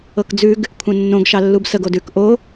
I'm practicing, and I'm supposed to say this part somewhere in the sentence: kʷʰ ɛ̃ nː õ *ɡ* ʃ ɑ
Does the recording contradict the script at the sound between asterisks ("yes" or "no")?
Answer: no